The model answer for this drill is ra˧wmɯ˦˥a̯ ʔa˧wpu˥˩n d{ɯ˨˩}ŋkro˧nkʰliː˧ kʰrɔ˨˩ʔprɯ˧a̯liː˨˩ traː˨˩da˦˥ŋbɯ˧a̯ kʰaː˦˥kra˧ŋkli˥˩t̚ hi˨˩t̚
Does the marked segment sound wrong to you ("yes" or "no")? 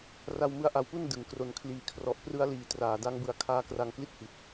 yes